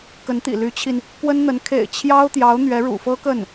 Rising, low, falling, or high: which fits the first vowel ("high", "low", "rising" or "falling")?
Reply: rising